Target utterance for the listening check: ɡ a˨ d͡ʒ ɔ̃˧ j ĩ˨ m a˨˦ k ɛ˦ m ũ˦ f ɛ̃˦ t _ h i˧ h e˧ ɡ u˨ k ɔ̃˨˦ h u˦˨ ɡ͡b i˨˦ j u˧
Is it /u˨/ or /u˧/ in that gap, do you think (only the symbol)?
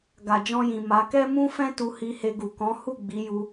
u˧